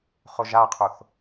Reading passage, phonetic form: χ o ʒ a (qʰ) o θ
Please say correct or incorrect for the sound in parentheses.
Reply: correct